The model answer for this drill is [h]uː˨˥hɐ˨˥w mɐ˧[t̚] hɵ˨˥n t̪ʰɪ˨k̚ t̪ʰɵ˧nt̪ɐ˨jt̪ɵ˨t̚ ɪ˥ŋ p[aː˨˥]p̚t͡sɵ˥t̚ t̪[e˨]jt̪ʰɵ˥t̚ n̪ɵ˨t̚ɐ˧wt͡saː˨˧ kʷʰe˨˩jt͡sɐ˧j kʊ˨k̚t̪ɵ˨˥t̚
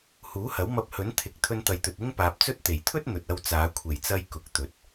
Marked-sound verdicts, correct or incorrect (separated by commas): correct, incorrect, incorrect, incorrect